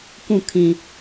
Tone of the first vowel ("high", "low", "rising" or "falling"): falling